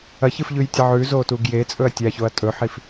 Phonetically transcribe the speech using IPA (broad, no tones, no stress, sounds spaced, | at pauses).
ɐ ç ɨ f ʎ ʉ j tʲ ɐ ʕ ʉ z o t u ɡ j e t͡sʼ ɵ ɐ̯ tʲ a ç o ɐ̯ tʼ ɵ ħ i f